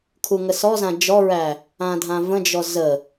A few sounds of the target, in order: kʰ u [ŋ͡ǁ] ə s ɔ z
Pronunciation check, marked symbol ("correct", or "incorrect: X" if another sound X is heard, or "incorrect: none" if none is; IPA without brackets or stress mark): incorrect: ŋ